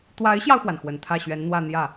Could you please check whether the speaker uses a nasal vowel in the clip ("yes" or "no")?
no